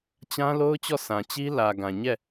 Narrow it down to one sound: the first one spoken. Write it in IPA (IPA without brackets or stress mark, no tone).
t͡ɕ